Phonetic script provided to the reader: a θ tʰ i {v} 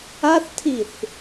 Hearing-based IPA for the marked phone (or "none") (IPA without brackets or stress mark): θ